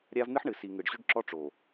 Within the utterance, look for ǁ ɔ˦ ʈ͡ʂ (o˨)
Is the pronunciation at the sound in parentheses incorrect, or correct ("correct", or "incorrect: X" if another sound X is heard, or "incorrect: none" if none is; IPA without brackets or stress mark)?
correct